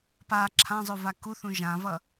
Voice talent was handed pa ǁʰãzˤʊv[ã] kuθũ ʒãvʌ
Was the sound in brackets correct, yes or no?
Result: no